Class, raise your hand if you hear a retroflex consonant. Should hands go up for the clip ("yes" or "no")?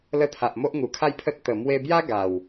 no